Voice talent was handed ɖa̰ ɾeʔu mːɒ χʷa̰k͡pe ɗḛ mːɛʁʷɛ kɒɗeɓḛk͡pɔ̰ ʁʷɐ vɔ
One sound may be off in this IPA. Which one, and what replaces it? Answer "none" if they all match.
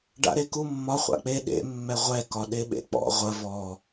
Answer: ʔ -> k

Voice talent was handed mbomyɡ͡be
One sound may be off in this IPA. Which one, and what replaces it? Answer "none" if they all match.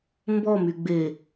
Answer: o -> ɔ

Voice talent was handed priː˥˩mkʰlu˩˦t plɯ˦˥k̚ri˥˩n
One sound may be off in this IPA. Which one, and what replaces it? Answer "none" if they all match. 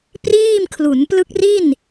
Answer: t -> n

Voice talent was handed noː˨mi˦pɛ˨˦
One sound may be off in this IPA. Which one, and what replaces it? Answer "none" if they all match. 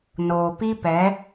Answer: m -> p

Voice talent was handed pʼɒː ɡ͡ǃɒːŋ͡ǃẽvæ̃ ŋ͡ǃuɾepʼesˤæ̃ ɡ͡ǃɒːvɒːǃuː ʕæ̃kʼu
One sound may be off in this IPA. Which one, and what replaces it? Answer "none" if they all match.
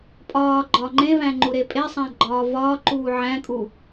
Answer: none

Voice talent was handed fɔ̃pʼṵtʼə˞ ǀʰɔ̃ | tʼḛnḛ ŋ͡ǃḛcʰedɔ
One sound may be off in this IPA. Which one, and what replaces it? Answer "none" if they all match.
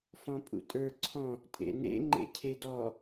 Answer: none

